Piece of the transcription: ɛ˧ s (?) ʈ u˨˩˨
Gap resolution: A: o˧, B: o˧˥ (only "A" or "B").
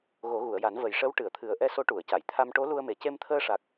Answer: B